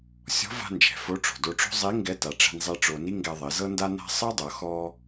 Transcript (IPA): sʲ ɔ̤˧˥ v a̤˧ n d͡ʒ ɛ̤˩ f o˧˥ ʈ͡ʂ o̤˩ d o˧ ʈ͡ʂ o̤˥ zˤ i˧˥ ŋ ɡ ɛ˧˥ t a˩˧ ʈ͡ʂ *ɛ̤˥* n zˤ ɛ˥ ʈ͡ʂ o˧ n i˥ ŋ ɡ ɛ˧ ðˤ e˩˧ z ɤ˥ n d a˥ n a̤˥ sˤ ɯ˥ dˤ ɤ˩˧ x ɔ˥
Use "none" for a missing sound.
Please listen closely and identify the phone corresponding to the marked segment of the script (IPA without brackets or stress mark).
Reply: ɛ̤˧